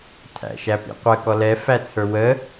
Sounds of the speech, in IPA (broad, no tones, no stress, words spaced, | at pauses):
tʰæ̰ʃæpḭqʷə kɔlɛ fæt͡sʰə˞wə